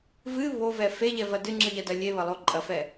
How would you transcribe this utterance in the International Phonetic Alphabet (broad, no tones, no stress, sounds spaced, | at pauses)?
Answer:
v ɨ β o v ɛ f e ʎ ɛ v ɐ d ɨ ŋ͡ǁ ɨ ʎ ɐ d ɐ lʲ e β ɐ lˠ o ǃʼ ɐ f ɛ